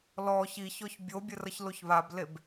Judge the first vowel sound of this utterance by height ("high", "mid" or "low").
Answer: mid